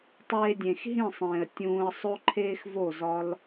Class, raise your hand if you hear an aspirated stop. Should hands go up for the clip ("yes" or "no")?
yes